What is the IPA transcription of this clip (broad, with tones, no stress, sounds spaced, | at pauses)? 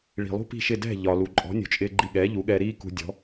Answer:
ɭ i̤˩ lˠ ṳ˥ p i̤˥˩ ʃ ɪ˥˩ d ɛ̤˥˩ ʎ ɒ˩ l u˩ ǃʼ ɔ̤˩˥ nʲ ṳ˩ t͡ʃʼ ɪː˧ ɡ͡ǃ i˧ ɠ ɛː˩˥ ʎ u˩˥ ɠ ɛː˧ ɾ iː˥ k ṳ˧ dʲ ɔ̤˩˥